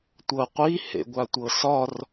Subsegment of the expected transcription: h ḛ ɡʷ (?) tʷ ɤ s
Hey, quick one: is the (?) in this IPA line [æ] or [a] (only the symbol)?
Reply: a